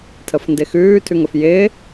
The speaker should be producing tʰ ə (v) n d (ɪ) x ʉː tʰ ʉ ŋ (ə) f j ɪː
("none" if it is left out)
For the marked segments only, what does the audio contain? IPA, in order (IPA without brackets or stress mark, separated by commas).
f, ɪ, ə